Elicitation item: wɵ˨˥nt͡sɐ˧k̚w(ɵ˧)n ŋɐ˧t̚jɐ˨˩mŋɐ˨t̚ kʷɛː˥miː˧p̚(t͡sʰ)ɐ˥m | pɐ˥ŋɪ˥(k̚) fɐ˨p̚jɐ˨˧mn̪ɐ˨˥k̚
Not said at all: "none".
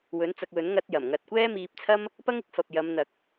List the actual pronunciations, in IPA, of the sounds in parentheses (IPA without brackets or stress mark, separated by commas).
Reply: ɵ˨˥, t͡sʰ, k̚